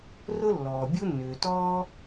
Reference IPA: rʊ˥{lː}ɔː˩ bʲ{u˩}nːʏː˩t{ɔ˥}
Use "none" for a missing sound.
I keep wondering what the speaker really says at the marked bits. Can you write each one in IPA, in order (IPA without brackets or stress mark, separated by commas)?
lː, u˥, ɔː˥